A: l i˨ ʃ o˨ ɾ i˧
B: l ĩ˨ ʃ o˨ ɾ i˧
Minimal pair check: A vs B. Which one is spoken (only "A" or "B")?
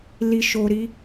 A